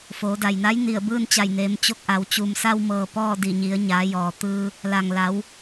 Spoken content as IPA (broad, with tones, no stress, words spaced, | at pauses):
foː˩˧da˩jna˧˥j ni˧˩ə̯bɯː˥˨nt͡ɕa˧˩j neː˩˧mt͡ɕo˥˨k̚ʔa˩˧w t͡ɕu˩msa˧wmɤː˩ pɔː˥˨ di˧˩ɲi˩˧ə̯ ɲaː˩˧jɔː˩t̪ɯː˧ | la˩ŋla˩˧w